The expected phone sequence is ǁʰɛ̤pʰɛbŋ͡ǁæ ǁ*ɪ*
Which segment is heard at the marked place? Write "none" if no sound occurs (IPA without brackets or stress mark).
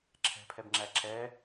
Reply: ɛ